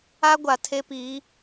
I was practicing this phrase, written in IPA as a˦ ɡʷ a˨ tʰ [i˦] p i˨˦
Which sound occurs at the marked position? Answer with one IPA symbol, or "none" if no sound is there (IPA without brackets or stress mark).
e˦